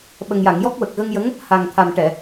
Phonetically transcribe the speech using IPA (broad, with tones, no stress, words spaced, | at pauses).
ɓə˨˩ŋja˨˩˨ŋ jɔ˦˥k̚wə˨˩k̚ ɣə˧ŋjə˧˥ŋ | ha˨˩ŋt̪ʰa˨˩m ʈɛ˨˩˨